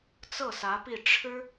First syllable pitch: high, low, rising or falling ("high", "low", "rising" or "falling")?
falling